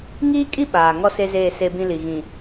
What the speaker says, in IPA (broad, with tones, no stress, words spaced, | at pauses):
ŋiː˦kʼi˦ ɓaː˨ ŋɔ˦se˦zeː˦˨ se˦bĩ˦li˨ ɣĩ˨